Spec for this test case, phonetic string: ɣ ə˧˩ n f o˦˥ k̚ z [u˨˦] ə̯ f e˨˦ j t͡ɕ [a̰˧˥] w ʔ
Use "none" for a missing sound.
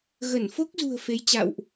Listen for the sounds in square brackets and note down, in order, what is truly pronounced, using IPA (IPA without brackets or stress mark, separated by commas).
ṳ˨˩, a̰˧˨